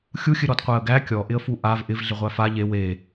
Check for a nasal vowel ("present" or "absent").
absent